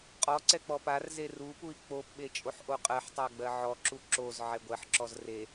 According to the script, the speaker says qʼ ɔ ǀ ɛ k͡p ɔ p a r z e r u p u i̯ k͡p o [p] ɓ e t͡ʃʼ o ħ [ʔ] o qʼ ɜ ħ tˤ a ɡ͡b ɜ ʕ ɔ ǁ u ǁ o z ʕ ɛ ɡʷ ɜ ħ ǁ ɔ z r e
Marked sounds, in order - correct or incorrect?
correct, correct

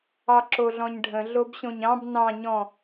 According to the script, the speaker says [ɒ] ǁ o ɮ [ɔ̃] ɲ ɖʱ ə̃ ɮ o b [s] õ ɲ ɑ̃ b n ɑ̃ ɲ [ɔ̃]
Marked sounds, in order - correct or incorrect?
incorrect: ɑ, correct, incorrect: ɕ, correct

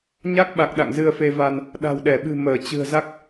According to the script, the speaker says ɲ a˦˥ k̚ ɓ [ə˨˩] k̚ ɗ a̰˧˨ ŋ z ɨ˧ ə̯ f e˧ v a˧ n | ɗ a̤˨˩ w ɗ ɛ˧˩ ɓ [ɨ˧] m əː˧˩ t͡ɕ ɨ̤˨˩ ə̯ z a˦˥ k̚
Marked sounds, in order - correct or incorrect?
incorrect: a˨˩, incorrect: ɨ̤˨˩

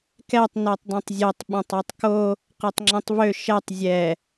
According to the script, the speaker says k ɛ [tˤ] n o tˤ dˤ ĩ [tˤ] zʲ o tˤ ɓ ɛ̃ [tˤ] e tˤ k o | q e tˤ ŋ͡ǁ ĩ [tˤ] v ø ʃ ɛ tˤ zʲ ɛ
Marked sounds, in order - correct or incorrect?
correct, correct, correct, correct

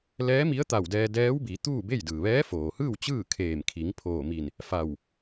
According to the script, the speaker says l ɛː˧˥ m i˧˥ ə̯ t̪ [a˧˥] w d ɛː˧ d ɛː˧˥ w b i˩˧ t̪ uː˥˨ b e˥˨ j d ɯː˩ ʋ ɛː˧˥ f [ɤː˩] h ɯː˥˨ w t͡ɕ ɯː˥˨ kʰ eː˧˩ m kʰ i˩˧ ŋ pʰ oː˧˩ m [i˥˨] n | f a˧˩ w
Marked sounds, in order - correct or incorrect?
incorrect: a˧˩, incorrect: oː˩, incorrect: i˧˩

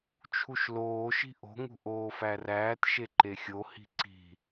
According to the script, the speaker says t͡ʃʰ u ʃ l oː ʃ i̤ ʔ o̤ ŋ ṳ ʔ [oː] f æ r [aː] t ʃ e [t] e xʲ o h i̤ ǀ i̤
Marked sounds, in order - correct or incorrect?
correct, incorrect: æː, incorrect: ǃ

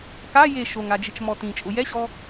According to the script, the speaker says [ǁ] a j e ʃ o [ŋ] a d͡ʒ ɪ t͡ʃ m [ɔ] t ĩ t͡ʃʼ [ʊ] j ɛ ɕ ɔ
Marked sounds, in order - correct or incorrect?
incorrect: k, correct, correct, correct

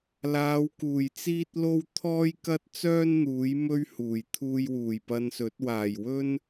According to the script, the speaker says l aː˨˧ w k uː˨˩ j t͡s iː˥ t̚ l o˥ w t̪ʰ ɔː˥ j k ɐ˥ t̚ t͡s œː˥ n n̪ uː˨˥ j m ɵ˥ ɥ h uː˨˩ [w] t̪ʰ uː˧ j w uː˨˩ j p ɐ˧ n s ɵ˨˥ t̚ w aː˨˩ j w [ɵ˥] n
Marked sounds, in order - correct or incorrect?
incorrect: j, correct

